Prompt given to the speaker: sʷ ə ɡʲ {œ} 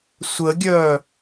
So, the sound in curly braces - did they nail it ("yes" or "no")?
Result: yes